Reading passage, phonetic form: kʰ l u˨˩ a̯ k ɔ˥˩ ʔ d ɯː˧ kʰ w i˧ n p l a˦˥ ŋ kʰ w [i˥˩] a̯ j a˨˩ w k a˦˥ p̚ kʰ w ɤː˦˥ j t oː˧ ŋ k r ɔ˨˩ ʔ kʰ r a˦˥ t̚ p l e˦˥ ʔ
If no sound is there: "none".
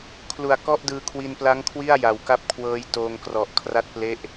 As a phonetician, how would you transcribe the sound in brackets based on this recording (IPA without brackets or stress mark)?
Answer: i˥˩